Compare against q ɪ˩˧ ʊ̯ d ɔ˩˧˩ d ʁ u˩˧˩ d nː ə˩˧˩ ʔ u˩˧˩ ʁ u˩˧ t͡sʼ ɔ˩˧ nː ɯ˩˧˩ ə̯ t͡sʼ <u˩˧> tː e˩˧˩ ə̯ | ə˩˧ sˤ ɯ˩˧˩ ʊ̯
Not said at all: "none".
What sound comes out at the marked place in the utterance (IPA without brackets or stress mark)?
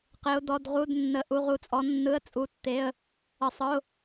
u˩˧